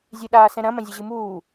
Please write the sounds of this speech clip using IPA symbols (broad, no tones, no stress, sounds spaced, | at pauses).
zʲ ɨ ɗ aː s ɛ̃ ɾ ɐ̃ m ɐ̃ zʲ ɛ ʑ ɨ m uː